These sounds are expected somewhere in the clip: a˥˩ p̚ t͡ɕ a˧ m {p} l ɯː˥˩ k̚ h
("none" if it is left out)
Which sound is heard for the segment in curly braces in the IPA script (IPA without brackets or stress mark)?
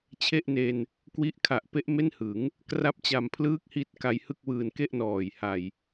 pʰ